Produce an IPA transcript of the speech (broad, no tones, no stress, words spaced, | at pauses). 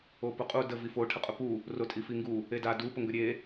opʊqʼu də vifo ʈʰəqʼʊpu | rotʼifiŋɡu | eda du pʊŋɡəɾʲe